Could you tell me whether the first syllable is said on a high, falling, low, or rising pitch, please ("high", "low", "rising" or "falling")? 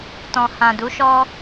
low